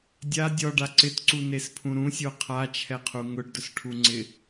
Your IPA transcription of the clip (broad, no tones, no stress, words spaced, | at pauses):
dʲa dʲɔɖa ǀɪtǀunespʰũ ɾũsʲo qʰat͡ʃʰɛqʰu ŋʊɖdʊsʈʰuŋ͡ǀɪ